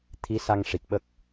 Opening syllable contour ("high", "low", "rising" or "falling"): rising